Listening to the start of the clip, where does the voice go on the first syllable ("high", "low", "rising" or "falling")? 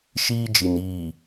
high